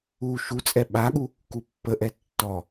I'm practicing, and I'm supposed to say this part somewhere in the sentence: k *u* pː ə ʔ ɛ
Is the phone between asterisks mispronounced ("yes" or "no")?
no